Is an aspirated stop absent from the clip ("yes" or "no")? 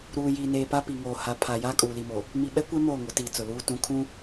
no